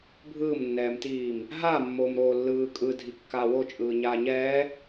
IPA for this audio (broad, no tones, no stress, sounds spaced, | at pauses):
bʱ ɯː m nː ɛː m t iː m | ɦ a mː oː m ɾ oː lː ɯː kʼ ɯ dʱ i kː aː w o t͡ʃʼ ɯː ɲ aː ɲ ɛː